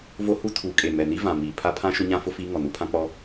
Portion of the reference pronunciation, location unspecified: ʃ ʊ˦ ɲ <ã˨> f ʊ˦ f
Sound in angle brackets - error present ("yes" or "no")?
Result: yes